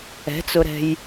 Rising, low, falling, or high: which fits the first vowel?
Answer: rising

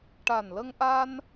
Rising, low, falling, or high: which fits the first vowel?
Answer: low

